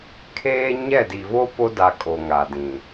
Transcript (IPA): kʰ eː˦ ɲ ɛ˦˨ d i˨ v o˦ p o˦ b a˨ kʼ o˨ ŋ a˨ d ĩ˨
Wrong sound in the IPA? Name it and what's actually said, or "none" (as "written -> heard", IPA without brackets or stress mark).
b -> d